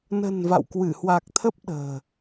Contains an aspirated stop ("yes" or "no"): yes